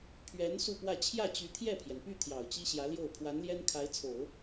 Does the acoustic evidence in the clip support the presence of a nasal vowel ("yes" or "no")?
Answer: no